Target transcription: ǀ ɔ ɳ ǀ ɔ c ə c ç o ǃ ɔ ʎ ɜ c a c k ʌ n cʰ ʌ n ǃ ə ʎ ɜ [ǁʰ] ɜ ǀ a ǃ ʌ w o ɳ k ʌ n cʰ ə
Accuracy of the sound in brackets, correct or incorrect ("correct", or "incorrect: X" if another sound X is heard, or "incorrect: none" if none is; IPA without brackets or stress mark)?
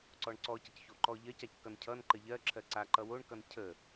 correct